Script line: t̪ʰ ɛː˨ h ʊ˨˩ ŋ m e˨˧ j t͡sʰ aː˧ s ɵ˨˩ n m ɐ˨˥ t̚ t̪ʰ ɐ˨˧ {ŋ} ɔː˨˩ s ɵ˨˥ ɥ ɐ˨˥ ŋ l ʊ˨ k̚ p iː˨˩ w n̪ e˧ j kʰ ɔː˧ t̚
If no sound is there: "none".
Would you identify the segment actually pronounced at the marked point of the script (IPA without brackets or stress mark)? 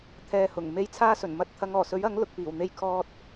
ŋ